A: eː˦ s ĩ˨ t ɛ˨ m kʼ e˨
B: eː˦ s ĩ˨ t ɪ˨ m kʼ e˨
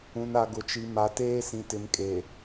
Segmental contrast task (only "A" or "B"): B